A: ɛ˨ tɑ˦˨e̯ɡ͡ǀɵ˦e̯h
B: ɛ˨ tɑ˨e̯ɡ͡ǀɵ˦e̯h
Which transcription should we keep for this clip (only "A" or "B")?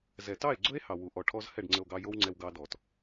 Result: A